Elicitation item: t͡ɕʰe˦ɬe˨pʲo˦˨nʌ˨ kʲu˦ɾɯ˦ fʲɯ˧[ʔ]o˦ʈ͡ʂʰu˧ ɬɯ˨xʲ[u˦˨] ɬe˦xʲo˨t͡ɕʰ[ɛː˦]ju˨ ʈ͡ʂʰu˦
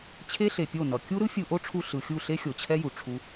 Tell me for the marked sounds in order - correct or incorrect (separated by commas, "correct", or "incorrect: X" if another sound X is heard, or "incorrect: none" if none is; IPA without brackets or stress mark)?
correct, correct, incorrect: ɛ˦